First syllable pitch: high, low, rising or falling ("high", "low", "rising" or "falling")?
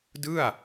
falling